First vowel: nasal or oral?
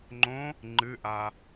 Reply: nasal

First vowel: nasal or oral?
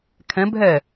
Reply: nasal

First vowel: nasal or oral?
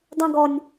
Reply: nasal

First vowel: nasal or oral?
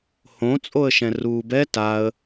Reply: nasal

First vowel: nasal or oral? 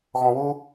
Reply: nasal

